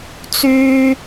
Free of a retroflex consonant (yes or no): yes